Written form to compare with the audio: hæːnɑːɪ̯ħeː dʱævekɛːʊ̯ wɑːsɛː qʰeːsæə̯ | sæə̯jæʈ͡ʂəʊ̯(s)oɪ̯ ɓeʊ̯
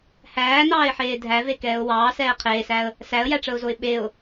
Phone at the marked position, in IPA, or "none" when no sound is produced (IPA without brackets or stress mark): z